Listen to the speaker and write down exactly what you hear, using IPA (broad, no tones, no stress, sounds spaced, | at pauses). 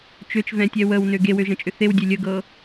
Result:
t͡ʃ ø t͡ʃ v ɛ̃ tʲ ɛ w ə w n ø ɡ e w ø ʒ ə̃ t͡ʃʼ ʏ θ e w dʲ e lʲ ə ɡ ɤ